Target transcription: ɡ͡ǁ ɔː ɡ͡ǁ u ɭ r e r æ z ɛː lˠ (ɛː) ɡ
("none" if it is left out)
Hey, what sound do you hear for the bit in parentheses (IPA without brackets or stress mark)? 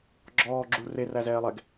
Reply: ɛ